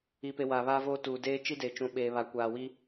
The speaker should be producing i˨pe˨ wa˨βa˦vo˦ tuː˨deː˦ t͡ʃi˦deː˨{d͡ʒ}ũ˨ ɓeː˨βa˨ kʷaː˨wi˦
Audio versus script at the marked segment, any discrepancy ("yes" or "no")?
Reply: yes